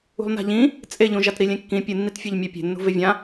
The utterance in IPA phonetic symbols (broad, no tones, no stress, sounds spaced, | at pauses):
ṳ lˠ n a̤ ʎ ĩ | t͡sʼ e ʎ ũ ʒ a t ɾ i lʲ ẽ kː ĩ pʲ ɨ nː i t fʲ a ʎ mʲ a pʲ e̤ nː ṳ v e vʲ ã